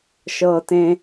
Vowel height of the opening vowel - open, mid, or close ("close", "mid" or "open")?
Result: mid